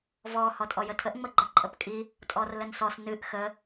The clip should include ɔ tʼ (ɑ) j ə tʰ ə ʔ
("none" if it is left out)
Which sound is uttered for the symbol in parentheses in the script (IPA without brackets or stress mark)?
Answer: ɔ